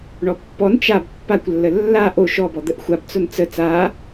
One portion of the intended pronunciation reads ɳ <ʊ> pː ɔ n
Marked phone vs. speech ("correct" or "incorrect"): incorrect